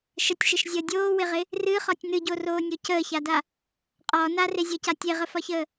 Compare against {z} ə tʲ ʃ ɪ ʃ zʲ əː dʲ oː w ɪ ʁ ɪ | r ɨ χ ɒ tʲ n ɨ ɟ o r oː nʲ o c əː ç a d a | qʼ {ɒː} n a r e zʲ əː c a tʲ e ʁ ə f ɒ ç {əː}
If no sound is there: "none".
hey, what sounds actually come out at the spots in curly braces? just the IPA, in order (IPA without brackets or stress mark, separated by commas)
ʃ, ɒː, əː